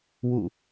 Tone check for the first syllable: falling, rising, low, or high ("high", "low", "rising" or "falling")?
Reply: falling